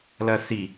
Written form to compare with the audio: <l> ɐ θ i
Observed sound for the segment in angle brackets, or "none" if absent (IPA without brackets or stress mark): l